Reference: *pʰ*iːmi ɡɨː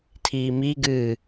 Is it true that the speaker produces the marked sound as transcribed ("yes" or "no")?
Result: no